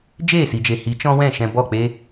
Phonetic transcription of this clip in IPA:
d͡ʒeː˦˨si˨d͡ʒe˨ hi˨˦t͡ʃɔ̃˦wɛ̃˦˨ ʃɛ̃˧bɔ˦˨k͡pe˦

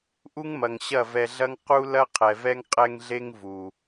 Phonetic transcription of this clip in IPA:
ʔu˦ŋmɐ˨ŋ ɕɐ˦˨ vɛ˧ɮɐ˦ŋ qu˦ lɐ˦qʰɛ˨vɛ˦ŋ qʼɛ˦ŋɮe˦ŋ vu˨

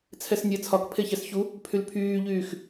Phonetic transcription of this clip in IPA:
t͡sʰɛsnʲɛ t͡sʰɒkpʰeçɛs çu | pʰylpʰyːʎyːx

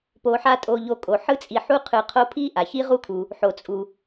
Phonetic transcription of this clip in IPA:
po˨ħa˦ tʼo˨ʎo˨kʼo˩ ħɯ˥t͡sʼi˨ħu˥qʰɯ˨ qʰo˦pʰi˥ ʔa˩çi˥ʁu˥kʰu˩ | ħo˩t͡sʼu˩

